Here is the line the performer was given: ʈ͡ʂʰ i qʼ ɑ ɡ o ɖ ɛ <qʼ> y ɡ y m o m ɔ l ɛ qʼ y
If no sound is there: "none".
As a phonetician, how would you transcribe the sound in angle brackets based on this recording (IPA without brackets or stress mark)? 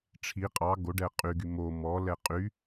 qʼ